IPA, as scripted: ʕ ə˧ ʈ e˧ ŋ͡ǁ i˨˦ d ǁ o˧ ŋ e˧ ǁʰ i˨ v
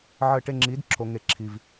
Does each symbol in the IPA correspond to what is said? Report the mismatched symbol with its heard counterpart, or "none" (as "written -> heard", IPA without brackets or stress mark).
none